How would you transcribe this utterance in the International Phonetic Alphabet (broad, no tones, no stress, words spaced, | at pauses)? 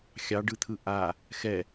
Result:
xʲɑɖɯt̪ʰɯ ʔa | xɛ